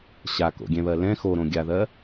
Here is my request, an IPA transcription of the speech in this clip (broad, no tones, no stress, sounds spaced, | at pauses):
ɕ a k o̰ ɡʲ ɛ̃ β ɜ l ɛ̃ x o ɾ õ ɡʲ a ð ɜ